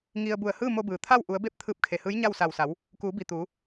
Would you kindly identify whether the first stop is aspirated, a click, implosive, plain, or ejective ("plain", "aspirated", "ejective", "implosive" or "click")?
plain